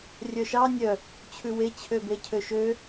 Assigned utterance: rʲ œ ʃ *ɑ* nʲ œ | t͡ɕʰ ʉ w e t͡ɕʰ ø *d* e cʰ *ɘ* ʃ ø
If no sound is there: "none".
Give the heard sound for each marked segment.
ɑ, b, ø

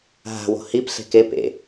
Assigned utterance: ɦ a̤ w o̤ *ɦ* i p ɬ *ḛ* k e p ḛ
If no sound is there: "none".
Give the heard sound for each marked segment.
h, e̤

